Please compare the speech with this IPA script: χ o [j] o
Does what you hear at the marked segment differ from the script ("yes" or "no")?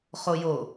no